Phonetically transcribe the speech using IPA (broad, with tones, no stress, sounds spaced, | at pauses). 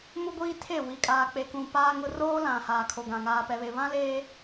m u˦ ɡʷ iː˦ tʰ e˦˨ w i˨ kʼ aː˨ k͡p e˨ k ũ˨ p aː˦ ŋ ʊ˦ r oː˦ l ã˨ h aː˨ kʰ o˨ ɡ ã˨ ŋ aː˨ p ɛ˨ β e˨ β ã˦ l eː˦